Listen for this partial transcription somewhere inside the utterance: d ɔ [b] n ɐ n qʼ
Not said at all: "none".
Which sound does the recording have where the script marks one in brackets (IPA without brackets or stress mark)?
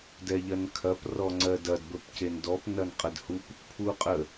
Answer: p